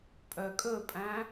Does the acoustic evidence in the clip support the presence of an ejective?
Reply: yes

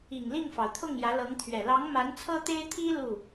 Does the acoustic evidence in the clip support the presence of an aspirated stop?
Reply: yes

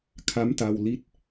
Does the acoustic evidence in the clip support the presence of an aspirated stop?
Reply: yes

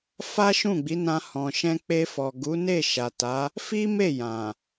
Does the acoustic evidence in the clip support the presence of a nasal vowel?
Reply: yes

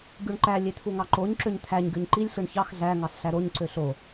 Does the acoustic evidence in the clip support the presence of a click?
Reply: yes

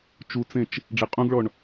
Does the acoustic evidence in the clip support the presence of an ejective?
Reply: yes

